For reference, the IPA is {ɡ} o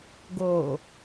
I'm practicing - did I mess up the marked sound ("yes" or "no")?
no